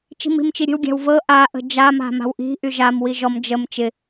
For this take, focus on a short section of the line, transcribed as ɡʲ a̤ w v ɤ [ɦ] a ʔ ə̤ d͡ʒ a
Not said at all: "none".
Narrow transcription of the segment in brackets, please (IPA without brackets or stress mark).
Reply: ʔ